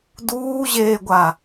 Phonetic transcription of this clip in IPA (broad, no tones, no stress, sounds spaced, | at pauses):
d uː ʑ eː ɡʷ a